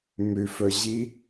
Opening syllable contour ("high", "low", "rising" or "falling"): low